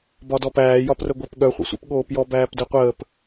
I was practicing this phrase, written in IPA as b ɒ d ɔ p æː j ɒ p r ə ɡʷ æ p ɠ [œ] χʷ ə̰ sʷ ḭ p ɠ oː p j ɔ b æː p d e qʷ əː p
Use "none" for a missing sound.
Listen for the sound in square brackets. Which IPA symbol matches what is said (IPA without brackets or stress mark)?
œ